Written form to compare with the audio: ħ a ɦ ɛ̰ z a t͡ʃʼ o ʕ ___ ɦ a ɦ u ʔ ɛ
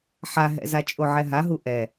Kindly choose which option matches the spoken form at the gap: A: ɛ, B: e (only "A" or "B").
A